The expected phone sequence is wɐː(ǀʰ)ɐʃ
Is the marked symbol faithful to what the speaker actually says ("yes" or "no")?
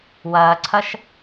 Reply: yes